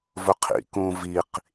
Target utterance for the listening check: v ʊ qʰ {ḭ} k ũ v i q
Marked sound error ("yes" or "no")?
no